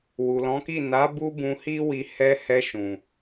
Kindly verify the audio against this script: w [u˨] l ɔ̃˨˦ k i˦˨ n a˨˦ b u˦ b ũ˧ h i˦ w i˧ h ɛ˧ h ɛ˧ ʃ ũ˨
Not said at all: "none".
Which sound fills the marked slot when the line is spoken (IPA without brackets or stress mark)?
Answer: u˨